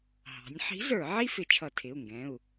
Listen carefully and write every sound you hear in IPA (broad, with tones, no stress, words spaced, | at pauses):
ɦɑ̤˩˧nʲħi̤˧˥ zə˞˧˩˧ʕi˥ fɪ˧˩˧t͡ʃʰʌ˧˩˧tʰɪ˩˧˩u̯ŋɡɛ̃˩˧˩u̯